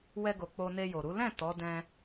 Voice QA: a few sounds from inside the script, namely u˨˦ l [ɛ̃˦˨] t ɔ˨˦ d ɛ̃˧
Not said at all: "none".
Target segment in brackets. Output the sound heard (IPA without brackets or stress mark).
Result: ɛ̃˦˨